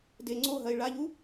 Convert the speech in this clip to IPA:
d e ŋ͡ǀ o ɦ ɐ ɪ̯ ɭ a ʎ u

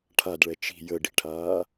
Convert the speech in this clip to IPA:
ʈʰ a d ɭ ɛ t͡ʃ i̤ j ə ɖ i̤ ʈʰ aː

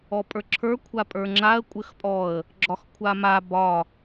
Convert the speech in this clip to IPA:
ɔ pʼ ə˞ ǁʰ ə˞ kʷʰ a pʼ ə˞ ŋ͡ǁ a ə̯ kʷʼ ɘ x pʼ ɔ ə̯ | ɡ͡ǁ ɒ x kʷʰ a m a b ɒ

